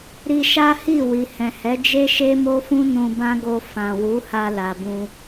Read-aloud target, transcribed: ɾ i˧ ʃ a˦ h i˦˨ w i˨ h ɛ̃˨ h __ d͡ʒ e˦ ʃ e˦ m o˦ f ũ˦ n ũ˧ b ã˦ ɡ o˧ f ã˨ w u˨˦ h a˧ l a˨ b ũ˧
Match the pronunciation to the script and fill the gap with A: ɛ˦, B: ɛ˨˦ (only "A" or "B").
B